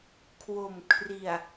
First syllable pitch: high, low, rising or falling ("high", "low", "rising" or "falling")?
low